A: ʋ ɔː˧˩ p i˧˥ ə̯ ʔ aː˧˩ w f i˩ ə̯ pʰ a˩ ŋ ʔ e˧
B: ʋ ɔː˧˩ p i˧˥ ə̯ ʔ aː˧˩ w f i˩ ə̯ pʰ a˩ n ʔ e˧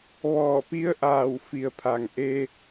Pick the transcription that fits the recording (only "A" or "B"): A